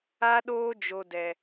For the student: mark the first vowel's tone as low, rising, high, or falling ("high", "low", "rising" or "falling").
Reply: high